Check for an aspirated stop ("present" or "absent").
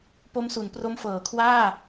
present